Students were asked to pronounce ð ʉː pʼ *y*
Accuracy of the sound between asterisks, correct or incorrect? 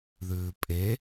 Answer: incorrect: e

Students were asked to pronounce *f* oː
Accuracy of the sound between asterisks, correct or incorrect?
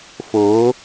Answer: correct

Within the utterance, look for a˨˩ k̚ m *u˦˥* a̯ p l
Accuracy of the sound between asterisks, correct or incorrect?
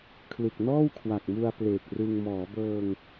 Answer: incorrect: u˧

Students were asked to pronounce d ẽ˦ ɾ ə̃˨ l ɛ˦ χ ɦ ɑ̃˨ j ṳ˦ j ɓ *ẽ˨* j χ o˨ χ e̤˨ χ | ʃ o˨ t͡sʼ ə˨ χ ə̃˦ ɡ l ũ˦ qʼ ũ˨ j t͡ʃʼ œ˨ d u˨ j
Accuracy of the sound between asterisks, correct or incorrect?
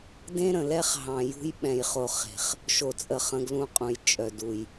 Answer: incorrect: ɛ̃˨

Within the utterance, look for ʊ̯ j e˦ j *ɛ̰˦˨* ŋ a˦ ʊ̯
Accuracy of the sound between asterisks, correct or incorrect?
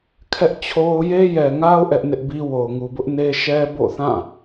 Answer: incorrect: ɛ˨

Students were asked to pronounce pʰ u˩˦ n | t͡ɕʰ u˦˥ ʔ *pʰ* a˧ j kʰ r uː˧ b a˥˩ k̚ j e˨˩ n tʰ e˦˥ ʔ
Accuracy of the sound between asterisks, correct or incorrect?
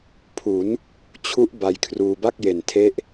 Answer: incorrect: b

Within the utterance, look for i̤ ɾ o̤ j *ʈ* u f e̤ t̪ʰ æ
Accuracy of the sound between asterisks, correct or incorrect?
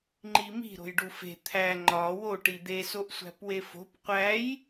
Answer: incorrect: ɖ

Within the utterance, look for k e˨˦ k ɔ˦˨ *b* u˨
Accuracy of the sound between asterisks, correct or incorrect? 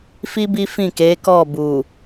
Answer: correct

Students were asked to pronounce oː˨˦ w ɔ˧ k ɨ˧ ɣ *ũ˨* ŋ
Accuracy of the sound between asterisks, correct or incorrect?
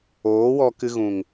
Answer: correct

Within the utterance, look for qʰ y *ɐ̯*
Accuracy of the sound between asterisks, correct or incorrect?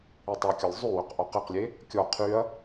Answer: correct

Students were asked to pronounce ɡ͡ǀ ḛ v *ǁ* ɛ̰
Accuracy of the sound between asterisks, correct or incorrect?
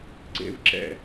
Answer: correct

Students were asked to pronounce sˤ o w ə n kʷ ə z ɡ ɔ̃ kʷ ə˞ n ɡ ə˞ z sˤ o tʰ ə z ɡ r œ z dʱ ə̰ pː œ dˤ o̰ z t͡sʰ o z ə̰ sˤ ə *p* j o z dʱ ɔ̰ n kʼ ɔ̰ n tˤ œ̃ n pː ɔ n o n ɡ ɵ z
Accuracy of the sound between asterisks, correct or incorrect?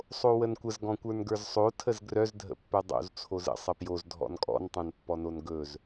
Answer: correct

